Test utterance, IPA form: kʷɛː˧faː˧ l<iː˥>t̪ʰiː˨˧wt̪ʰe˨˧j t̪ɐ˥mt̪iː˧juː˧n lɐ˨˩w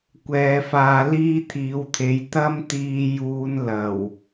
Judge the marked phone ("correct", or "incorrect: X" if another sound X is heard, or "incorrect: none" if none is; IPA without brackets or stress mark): correct